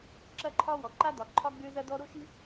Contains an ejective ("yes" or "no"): no